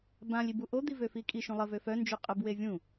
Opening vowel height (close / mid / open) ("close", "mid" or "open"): open